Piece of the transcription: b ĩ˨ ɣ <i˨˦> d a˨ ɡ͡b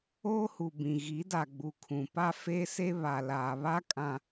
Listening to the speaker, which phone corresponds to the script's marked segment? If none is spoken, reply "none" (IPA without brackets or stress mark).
i˨˦